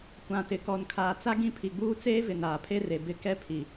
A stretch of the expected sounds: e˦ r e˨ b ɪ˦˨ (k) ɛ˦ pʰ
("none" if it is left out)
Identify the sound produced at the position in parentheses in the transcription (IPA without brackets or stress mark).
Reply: k